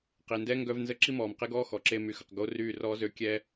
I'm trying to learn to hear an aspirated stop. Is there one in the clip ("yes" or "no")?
no